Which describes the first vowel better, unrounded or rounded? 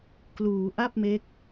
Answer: rounded